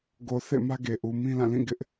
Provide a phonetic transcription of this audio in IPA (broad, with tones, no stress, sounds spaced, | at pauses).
ɡ o˨ θ ḛ˦˨ m ä˦ ɡ e˨ ʔ u˨ m ĩ˦ l ã˦˨ l ĩ˦˨ ɡ ɪ˦ ʔ